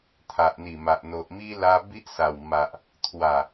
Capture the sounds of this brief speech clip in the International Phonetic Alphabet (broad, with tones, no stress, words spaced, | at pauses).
t̪ʰa˨ʔn̪i˨˩ma˨ʔ n̪o˨ʔmi˦ la˦ bi˦ʔsa˨˩w ma˨ʔ | t̪ʰwa˨˩